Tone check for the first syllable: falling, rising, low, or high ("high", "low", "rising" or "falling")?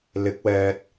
rising